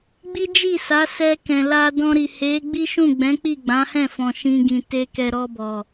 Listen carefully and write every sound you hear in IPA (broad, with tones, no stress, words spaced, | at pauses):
ɡ͡bi˦d͡ʒi˦˨ sa˨˦sɛ˧kɛ̃˨ la˧dɔ̃˧ɾi˨ he˨˦ ɡ͡bi˦ʃũ˦˨ɡ͡bɛ̃˨˦k͡pi˦˨ ɡ͡bã˨˦hɛ̃˦˨fɔ̃˨ ʃĩ˧ɡĩ˨te˧ kɛ˨ ɾɔ˧bɔ˨